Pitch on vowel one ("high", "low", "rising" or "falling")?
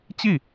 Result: falling